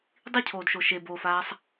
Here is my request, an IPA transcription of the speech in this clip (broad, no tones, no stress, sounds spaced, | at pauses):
dˤ i cʰ oː d ʃ o ʃ e b oː f aː sˤ